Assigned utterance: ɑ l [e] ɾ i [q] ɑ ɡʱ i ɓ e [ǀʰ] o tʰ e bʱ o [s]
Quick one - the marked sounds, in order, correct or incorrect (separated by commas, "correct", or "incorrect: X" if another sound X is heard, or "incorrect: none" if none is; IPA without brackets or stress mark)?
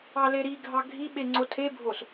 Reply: correct, incorrect: ɡʱ, incorrect: ŋ͡ǀ, correct